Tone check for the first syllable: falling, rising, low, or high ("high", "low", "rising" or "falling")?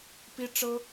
high